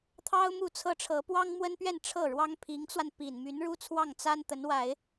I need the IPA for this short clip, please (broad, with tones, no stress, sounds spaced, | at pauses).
t̪ʰ ɑ˥ ʊ̯ m u˥˩ t͡sʰ ɤ˥ ʈ͡ʂʰ ɤ˧˥ p w ɑ˥ ŋ m w ə˥ n p ɥ ɛ˥˧ n ʈ͡ʂʰ ɤ˥˩ ɻ w ɑ˥ ŋ pʰ i˧˥ ŋ t͡s w a˧ n p i˨˩ n m y˧˥ n ɻ u˥ t͡sʰ w ɑ˥˩ ŋ t͡s a˥ n t̪ ə˧˥ n w a˨˩˦ ɪ̯